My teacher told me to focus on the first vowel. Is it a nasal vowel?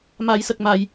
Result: no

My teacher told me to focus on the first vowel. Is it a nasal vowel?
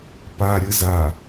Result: no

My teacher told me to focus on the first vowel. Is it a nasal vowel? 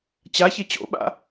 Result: no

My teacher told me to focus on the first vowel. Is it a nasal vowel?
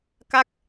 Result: no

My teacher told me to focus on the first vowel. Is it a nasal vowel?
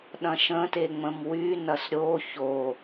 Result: yes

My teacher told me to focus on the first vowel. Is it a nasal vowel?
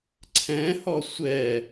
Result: yes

